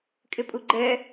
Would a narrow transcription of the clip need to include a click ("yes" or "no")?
yes